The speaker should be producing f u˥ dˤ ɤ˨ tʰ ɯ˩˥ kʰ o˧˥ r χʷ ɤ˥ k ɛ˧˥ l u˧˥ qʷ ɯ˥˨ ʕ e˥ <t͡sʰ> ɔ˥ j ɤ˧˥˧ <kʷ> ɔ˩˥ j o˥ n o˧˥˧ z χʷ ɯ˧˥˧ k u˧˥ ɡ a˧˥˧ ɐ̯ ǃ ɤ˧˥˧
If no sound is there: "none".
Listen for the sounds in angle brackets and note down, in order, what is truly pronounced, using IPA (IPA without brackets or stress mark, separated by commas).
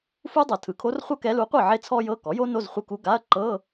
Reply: t͡sʰ, k